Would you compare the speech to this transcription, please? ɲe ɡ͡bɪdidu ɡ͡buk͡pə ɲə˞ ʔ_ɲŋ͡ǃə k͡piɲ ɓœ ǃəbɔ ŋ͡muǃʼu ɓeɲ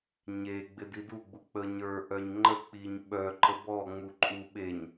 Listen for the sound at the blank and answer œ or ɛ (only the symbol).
œ